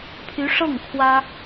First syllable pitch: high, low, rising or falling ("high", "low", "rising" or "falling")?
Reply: rising